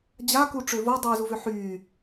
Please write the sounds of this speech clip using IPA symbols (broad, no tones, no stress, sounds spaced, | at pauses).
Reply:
d͡ʑ a k u ʈ͡ʂ ø v o dˤ yː z u v ø ħ yː